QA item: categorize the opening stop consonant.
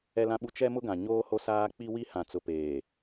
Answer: implosive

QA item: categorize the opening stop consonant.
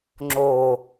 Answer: click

